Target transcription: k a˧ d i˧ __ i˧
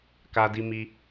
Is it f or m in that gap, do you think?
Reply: m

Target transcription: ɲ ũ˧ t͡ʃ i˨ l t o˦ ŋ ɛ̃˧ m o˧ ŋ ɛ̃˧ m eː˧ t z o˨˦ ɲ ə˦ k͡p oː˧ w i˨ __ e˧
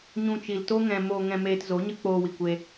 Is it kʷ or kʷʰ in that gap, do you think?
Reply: kʷ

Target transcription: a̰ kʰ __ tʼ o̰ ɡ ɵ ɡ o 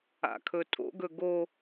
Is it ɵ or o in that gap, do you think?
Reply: ɵ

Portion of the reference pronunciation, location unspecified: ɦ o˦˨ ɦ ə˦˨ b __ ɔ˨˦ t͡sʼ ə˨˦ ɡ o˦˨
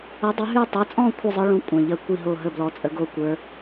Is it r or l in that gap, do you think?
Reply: l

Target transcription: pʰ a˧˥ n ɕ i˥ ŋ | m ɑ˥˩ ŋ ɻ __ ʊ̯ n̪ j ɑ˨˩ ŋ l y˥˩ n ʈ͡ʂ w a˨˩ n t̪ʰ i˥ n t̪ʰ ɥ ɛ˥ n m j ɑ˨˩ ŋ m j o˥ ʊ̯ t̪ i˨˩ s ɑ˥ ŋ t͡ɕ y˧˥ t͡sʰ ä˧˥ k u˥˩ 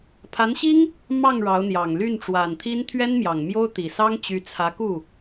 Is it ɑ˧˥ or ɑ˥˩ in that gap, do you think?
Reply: ɑ˧˥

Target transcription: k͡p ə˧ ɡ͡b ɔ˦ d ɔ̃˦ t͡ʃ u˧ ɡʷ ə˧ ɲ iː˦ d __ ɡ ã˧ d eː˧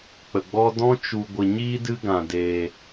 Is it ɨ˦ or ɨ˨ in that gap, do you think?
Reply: ɨ˦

